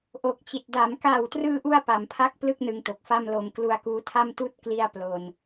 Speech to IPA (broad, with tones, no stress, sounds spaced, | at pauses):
ʔ o˨˩ k̚ t͡ɕ i˨˩ t̚ d a˩˦ m k aː˨˩ w t r ɯː˧ ʔ u˧ a̯ p a˩˦ m pʰ a˥˩ k̚ p l ɯ˥˩ k̚ n ɯ˧ ŋ t o˨˩ k̚ f a˥˩ m l o˧ m k l u˧ a̯ k uː˦˥ tʰ a˥˩ m t uː˥˩ t̚ k l i˥˩ a̯ p l o˧ n